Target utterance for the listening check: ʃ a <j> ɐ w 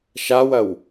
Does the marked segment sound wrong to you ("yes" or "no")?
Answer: yes